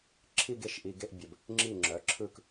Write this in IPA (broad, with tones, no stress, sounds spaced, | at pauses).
ǁʰ i˥˧ ɡ e˥˩ ʃ ʔ i˨ ɡ e˥˧ ʔ bʲ ə˨ b | ŋ͡ǁ i˥˩ ŋ͡ǁ œ˩˥ ǁʰ ɯ˥˧ k